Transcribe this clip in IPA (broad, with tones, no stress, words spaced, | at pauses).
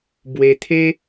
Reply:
bwe˧t̪ʰe˦